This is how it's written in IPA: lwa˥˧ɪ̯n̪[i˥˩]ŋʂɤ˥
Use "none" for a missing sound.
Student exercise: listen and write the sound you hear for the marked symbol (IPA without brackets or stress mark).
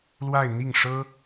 i˥˩